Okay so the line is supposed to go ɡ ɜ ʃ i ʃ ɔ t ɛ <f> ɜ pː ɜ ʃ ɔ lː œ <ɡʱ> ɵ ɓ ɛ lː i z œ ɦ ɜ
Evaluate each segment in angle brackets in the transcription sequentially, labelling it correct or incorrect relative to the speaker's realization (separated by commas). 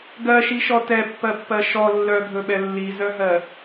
incorrect, correct